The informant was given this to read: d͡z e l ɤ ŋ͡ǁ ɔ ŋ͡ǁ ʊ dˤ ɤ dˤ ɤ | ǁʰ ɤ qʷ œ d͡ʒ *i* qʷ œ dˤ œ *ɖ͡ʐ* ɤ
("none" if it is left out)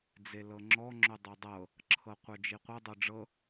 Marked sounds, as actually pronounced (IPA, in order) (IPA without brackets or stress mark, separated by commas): i, ɖ͡ʐ